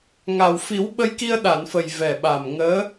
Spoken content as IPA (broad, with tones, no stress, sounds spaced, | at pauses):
ŋ a˨˩ w f i˨˩˦ w ɓ ə˧ j k i˧ ə̯ ɗ a˨˩˨ n f ə˨˩ j v ɛ˨˩ ɓ a˨˩ m ŋ əː˧˥